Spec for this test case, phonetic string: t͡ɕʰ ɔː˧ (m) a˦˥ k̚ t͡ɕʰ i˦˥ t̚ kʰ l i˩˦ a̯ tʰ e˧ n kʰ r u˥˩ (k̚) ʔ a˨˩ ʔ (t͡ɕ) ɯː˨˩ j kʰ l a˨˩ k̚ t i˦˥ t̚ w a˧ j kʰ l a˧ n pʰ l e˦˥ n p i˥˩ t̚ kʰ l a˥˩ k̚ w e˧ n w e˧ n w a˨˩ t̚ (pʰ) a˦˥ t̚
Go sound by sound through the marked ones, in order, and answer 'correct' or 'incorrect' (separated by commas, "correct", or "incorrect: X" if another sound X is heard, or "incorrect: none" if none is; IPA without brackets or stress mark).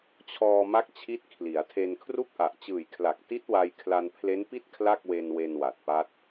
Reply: correct, correct, correct, incorrect: p